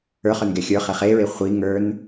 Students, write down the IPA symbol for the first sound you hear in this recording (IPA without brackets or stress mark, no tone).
ə˞